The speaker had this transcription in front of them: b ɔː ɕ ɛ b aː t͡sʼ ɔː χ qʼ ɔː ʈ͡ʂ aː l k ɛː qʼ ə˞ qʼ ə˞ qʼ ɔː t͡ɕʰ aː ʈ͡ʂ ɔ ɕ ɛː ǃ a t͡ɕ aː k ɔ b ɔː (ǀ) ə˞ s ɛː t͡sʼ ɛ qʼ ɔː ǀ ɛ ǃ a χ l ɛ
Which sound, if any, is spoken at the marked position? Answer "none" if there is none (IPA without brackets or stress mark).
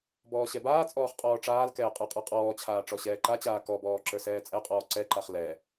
ǁ